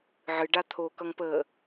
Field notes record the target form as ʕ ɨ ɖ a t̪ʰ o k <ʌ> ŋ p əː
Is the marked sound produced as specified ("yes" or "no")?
yes